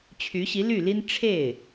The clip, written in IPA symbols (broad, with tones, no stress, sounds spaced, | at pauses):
t͡ɕʰ y˧˥ ɕ i˧˥ l y˥˩ l i˥ n ʈ͡ʂʰ e˥˩ ɪ̯